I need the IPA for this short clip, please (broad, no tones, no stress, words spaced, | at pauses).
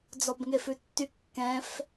d͡zɔbŋefʉtːy kːɛ̃f